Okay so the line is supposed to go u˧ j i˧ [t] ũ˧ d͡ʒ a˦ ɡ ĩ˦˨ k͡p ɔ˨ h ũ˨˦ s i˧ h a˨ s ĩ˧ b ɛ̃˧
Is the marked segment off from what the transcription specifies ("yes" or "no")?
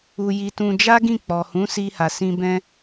no